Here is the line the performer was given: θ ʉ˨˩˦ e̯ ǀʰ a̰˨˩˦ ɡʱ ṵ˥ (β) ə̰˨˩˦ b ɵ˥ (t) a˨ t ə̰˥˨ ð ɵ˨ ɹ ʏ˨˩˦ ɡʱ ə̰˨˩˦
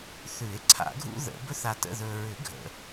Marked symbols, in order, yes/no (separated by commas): no, no